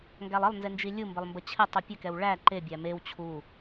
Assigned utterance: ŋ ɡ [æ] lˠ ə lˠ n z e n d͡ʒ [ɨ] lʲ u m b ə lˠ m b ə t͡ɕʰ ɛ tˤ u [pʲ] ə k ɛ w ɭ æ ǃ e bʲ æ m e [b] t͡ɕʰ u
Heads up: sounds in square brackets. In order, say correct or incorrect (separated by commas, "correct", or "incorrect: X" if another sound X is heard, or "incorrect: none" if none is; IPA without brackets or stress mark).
correct, incorrect: i, correct, incorrect: w